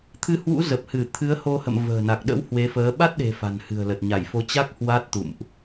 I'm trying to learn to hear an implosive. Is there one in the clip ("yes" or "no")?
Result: yes